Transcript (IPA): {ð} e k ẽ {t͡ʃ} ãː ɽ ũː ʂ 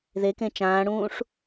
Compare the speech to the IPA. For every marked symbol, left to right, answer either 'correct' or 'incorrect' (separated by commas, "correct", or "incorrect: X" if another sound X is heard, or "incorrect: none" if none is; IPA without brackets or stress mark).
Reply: correct, correct